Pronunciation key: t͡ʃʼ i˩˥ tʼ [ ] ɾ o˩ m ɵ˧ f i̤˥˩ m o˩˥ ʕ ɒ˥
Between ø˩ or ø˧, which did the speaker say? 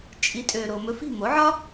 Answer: ø˩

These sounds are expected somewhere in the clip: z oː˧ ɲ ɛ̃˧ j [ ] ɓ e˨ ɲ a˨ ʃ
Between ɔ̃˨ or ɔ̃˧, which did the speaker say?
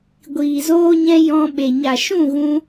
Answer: ɔ̃˧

